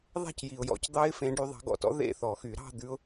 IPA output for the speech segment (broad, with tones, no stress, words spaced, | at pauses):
ðˤæ̤˥˩cji˩ʊ̯jɔ̰˨˦c d̪ɑ˦˥ɪ̯fẽ˨˦ɖy˨˦ ðˤɑ̤˨˦ɡɔ̰˥˩tɔ̰˦˥ ðḛ˥˧θɔ˨˩˦xy˨˩˦ ɾɑ̤˥˧ d̪ʉ˦˥ʊ̯